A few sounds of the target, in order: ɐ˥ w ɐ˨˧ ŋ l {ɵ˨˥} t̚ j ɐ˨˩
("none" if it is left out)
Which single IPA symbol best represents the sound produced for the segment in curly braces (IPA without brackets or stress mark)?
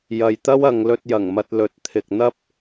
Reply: ɵ˧